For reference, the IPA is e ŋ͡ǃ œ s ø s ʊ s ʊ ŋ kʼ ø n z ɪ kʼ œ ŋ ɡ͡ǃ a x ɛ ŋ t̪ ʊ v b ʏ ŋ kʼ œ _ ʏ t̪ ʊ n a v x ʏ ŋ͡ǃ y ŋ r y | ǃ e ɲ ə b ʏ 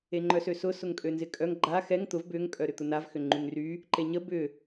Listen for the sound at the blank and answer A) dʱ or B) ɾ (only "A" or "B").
B